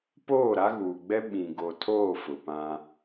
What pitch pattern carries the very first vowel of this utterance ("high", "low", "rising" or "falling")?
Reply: falling